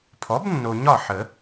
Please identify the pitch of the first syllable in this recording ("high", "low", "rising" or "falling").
rising